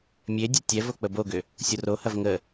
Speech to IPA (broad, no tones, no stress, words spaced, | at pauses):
mʲedʲɐ tʲɛvo k͡pəboɡʏ | sʲorohɐv ŋə